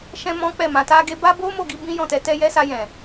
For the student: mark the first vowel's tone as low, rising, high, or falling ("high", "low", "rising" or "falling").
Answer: high